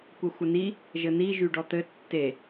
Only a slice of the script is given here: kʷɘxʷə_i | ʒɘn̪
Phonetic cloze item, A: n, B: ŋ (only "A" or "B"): A